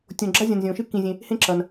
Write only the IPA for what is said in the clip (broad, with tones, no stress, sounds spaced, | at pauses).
tʲ õ˨ ɡ͡ǁ a˥ zʲ ɐ̃˨ n zʲ õ˩ ʃ ɨ˥ k ĩ˨ zʲ ẽ˨ | h ẽ˥ ǁ ɐ˩ n